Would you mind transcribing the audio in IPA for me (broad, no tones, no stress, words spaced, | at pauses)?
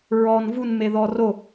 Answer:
ɹɔn vun meðɔro